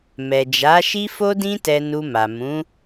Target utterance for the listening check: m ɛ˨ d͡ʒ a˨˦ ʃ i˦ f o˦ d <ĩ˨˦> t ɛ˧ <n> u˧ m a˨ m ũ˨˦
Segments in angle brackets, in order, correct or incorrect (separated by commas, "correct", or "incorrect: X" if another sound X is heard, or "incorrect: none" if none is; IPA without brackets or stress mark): incorrect: ĩ˦, correct